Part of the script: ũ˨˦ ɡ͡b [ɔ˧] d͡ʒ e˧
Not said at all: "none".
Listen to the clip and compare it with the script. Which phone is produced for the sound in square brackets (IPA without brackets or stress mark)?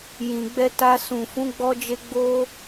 ɔ˧